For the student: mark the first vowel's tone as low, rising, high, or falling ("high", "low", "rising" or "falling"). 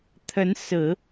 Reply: rising